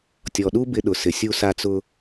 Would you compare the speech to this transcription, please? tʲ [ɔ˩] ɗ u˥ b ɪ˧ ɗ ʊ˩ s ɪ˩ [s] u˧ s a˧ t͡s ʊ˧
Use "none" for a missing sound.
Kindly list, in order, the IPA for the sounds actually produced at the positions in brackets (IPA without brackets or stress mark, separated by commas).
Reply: ɔ˩, sʲ